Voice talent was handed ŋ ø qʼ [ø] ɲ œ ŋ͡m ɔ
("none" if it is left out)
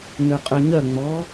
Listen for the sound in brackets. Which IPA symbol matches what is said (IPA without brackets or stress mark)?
ø